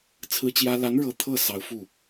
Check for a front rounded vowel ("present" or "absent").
absent